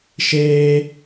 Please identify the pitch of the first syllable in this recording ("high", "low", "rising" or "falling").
high